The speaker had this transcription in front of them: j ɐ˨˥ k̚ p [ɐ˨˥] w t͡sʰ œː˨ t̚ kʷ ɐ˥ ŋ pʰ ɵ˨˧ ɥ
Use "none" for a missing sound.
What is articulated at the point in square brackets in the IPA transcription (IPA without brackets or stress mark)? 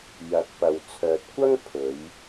ɐ˨